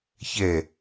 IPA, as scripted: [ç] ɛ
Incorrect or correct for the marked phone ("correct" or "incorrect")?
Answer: correct